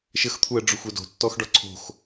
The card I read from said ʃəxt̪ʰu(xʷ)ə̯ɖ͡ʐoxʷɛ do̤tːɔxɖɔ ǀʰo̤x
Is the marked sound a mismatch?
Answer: yes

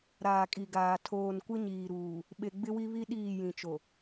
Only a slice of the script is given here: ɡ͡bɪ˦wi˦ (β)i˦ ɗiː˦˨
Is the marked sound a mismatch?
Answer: no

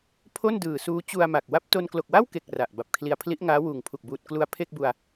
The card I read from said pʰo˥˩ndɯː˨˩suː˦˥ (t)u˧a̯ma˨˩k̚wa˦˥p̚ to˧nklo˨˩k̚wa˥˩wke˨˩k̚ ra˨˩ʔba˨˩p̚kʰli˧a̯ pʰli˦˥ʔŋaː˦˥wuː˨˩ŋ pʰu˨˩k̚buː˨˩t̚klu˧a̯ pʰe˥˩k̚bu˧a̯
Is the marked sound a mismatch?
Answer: yes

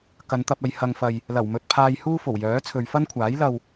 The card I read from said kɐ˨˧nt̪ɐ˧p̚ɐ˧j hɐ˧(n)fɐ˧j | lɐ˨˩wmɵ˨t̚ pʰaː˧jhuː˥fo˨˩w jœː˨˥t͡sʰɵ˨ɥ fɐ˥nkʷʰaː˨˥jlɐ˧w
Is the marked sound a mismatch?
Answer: yes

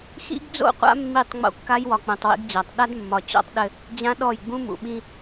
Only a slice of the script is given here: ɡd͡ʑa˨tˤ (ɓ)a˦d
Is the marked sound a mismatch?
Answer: yes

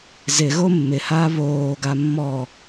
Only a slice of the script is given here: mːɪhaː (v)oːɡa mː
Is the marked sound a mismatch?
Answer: yes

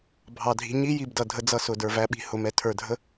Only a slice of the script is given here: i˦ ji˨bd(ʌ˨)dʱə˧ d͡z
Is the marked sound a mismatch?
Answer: no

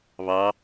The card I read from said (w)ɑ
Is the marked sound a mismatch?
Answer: yes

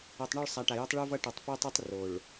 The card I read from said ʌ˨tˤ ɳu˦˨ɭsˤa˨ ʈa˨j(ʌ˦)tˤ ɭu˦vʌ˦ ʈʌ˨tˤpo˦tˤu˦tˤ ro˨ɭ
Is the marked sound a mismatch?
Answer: no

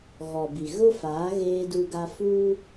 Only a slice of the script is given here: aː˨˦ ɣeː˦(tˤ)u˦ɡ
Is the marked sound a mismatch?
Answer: yes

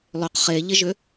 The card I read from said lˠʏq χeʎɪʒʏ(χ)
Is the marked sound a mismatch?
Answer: yes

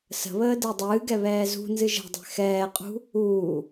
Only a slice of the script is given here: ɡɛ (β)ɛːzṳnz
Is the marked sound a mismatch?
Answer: no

